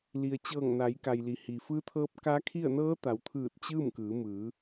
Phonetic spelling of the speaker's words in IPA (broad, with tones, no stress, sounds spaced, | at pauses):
l i˩ ə̯ t͡ɕ ɤː˧˩ ŋ n a˩˧ j k a˩ j l i˩˧ h i˩ f ɯː˧˥ t̪ʰ ɤː˧˥ p̚ k a˧˥ kʰ i˥˨ ə̯ n ɤː˧˥ t̪ a˩˧ w t̪ʰ ɯː˧˩ t̚ t͡ɕ ɯː˥˨ m k ɯː˩˧ m ɯː˩˧